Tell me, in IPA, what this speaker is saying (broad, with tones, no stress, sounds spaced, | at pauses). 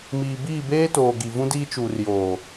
m iː˨ b iː˦˨ b eː˦ t oː˨ ɡ i˨ v ũ˦ d iː˦ t͡ʃ u˨ r j oː˨